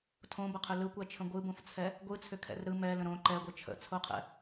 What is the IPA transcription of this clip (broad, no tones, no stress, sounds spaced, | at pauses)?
tʰ õ b ə qʰ ʏ l ɯ kʷ ɛ t͡ʃʰ ə̃ ɡʷ ɯ b õ f t͡sʰ ɛ | ɡʷ ɯ t͡sʰ ʏ kʰ ɛ̰ r ɾ ɯ m ɛ l ə̃ ɾ õ ǃ ɛ ɡʷ ɯ t͡ʃʰ ə̰ t͡sʰ o qʰ ɛ̰